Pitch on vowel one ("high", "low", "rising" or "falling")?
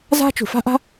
high